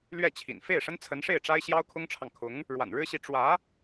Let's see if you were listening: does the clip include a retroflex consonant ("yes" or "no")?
yes